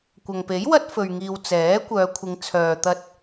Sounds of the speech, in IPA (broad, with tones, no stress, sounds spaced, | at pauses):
kʷ ɐ˨ ŋ p e˨˥ j w ɐ˥ t̚ f ɵ˨ ɥ ŋ iː˨ w t͡s ɛː˨˥ kʷ œː˨˧ kʷʰ ɪ˨˧ ŋ t͡sʰ œː˨ t̪ ɐ˧ t̚